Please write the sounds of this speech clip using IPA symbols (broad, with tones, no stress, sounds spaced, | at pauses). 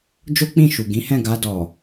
d͡ʒ o˦ k͡p ĩ˦˨ ʃ u˨ ɡ ĩ˨˦ h ɛ̃˦˨ ɡ a˧ d ɔ˨